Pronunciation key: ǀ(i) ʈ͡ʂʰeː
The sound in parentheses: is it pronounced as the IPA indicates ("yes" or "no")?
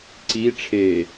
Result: yes